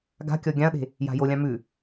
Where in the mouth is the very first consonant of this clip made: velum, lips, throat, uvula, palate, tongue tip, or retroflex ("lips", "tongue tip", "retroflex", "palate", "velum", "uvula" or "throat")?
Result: velum